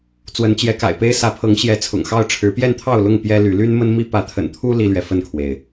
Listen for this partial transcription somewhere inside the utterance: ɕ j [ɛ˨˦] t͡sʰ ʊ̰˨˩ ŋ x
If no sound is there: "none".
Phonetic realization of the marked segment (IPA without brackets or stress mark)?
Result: ɛ˨˦